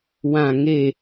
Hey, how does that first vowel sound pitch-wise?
falling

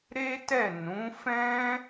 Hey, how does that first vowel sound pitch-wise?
high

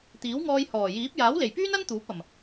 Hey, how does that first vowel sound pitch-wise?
rising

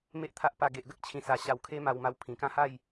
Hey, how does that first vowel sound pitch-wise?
low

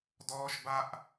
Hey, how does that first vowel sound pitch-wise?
high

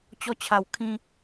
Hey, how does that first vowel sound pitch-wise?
high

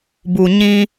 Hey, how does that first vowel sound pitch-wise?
low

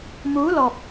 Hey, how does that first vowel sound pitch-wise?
rising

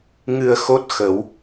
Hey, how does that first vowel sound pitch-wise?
low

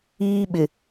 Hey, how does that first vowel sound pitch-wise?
high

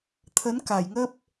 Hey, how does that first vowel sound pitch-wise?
rising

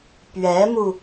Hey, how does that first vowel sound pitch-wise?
rising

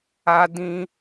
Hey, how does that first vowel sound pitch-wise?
high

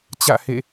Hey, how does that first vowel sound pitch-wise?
falling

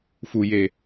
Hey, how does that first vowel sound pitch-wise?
low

